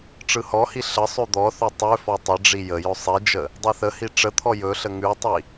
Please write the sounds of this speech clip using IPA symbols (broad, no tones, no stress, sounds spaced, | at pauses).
ʈ͡ʂ ɯ h ɔ h i ɬ ə sˤ ʉ d̪ ɔ θ ø tˤ ø f ɔ tˤ ə ɖ͡ʐ i j ə j ɵ sˤ i d͡ʒ ə | dˤ i θ ə h i ʈ͡ʂ ə t̪ʰ ɔ j ɵ ɬ ə ŋ ʉ tˤ i